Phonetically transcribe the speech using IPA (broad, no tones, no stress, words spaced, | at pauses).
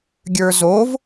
ɡʲə˞zov